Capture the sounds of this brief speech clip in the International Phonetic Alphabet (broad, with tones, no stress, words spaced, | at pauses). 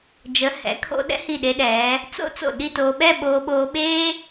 d͡ʒə˩˧hɛ̰˩˧kʰo̰˧ ɗɛ̰˥hi˧˩ɗe˧ɗɛː˩˧ | t͡so̰˥ t͡so̰˧˩ɗi˥˧toː˧ ɓɛ˥˧ɓoː˧ɓoː˧ɓeː˥